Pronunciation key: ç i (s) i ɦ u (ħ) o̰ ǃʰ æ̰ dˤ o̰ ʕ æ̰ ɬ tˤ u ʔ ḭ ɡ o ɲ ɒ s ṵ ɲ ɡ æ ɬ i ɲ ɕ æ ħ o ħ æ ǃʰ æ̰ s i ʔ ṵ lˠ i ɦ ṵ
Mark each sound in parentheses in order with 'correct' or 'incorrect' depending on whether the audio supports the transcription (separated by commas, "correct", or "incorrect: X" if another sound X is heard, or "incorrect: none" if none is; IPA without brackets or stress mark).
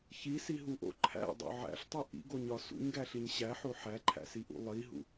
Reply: correct, incorrect: ʔ